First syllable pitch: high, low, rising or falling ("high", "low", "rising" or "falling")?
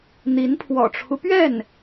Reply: rising